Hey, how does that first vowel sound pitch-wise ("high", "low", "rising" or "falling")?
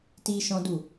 high